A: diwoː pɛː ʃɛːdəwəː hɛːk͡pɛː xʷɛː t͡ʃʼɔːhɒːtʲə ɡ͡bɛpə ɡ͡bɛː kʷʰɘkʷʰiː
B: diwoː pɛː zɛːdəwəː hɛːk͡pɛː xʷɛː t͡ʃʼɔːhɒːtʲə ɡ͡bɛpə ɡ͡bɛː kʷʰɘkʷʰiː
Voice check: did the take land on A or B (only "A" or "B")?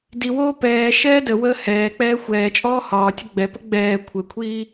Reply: A